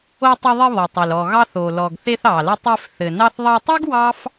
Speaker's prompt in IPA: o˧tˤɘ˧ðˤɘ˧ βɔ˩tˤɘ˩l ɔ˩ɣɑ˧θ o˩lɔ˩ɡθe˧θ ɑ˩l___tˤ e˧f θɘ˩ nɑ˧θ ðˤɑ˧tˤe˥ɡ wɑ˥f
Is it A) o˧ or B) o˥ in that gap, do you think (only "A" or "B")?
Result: A